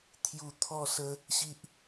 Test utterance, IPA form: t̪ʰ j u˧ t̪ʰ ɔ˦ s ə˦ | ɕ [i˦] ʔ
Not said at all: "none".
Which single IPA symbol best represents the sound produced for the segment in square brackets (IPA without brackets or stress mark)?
i˦